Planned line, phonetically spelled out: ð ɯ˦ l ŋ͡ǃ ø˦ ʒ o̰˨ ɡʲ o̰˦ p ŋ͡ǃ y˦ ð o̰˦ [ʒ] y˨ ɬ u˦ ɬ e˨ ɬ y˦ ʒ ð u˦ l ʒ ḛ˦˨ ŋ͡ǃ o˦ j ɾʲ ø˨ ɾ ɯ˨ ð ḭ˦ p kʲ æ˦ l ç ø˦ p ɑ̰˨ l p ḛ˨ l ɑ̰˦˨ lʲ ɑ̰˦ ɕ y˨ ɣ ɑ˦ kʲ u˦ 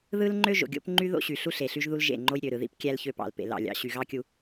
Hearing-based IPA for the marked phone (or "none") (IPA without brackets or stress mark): ɕ